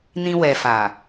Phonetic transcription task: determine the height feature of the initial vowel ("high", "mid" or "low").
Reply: high